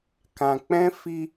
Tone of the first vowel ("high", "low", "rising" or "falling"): low